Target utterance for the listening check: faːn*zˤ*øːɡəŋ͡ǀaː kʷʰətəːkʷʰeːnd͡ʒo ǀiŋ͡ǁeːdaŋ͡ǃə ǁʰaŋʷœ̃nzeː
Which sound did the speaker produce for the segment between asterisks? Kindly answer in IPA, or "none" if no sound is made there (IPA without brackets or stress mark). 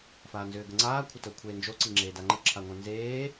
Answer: z